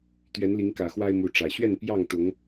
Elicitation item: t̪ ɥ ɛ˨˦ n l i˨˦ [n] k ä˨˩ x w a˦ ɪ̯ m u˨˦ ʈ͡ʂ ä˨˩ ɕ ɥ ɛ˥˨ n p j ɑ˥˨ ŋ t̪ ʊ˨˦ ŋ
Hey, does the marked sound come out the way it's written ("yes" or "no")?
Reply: no